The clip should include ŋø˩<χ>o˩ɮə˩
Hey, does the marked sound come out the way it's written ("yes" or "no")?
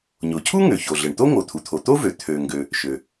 no